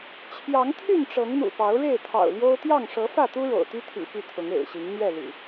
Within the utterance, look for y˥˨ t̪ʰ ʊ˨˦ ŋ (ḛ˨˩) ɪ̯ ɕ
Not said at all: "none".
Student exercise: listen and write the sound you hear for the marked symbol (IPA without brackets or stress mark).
ḛ˨˩